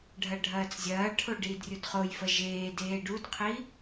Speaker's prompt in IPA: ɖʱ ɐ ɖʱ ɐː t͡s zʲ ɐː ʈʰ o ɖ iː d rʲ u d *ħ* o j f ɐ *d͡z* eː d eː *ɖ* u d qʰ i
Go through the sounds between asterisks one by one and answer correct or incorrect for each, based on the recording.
incorrect, incorrect, correct

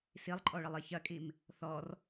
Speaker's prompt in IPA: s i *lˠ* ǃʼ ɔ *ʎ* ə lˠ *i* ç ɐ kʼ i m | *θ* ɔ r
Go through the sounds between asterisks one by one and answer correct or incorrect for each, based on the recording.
correct, incorrect, correct, correct

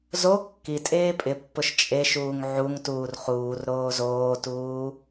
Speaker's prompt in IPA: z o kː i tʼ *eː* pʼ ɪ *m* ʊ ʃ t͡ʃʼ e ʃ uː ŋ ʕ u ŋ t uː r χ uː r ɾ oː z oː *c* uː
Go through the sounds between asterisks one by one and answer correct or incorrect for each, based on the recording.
correct, incorrect, incorrect

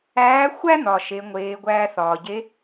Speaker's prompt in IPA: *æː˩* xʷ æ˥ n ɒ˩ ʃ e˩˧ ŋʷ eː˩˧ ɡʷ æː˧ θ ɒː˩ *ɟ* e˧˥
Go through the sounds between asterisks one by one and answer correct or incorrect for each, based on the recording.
incorrect, correct

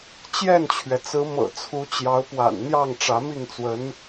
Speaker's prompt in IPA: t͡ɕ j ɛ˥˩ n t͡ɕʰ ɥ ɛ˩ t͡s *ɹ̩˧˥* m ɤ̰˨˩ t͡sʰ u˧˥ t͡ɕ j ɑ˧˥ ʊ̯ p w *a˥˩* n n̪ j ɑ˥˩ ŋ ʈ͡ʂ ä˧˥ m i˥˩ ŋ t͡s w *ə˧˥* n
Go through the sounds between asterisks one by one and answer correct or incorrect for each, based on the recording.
correct, incorrect, correct

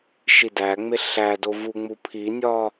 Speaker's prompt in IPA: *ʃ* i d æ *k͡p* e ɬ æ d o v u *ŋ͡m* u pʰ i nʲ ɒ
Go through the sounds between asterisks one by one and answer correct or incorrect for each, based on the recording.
correct, incorrect, correct

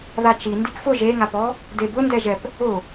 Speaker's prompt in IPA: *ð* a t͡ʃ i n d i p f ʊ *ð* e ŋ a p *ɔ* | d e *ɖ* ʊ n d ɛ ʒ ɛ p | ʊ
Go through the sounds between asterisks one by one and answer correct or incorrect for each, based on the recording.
correct, incorrect, correct, incorrect

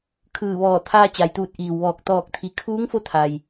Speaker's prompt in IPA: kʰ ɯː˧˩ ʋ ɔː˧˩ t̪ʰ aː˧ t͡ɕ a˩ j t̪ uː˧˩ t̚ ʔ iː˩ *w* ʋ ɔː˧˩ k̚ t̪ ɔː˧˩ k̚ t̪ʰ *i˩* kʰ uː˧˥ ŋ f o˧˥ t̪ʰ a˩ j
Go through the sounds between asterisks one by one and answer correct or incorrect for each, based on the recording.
correct, correct

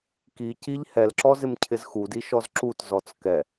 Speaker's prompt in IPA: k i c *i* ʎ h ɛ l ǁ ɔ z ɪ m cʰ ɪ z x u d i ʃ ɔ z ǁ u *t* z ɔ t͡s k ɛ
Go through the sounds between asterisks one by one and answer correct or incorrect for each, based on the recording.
correct, correct

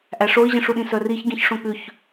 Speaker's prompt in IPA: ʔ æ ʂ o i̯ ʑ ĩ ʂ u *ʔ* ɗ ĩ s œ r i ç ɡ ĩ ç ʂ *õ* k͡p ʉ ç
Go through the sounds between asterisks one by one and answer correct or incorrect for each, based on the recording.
incorrect, correct

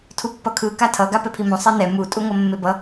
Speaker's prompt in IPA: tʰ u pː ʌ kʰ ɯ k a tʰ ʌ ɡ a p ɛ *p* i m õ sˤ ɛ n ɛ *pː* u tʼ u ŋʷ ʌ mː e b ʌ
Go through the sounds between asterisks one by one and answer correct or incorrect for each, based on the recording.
incorrect, incorrect

